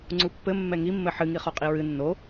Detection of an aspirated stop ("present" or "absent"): absent